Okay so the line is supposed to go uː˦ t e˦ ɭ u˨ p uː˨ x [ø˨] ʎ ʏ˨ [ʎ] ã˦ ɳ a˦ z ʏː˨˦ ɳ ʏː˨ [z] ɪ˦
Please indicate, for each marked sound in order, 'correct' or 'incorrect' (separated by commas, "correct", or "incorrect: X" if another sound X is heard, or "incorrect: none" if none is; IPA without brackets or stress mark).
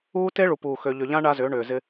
correct, correct, correct